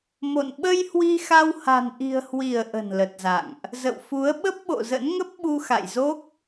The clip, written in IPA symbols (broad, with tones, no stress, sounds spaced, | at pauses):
m o̰˧˨ n ɓ ə˧ j h w i˧ x a˧ w h a̤˨˩ n ʔ i̤˨˩ ə̯ h w i˧˩ ə̯ ʔ ə̤˨˩ n l ə˨˩ t̚ z a̰˧˨ ŋ ʔ | z ə̰˧˨ w f u˨˦ ə̯ ɓ ə˦˥ p̚ ɓ o̰˧˨ z ə̰˧˥ n ŋ ə˦˥ p̚ ɓ u˧ x a̰˧˨ j z o˦˥ k̚